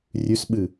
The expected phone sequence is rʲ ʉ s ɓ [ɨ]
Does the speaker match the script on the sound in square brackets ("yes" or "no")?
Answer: yes